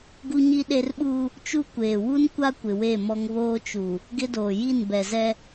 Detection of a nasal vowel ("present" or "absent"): absent